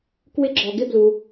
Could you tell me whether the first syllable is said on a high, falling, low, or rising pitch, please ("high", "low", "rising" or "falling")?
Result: high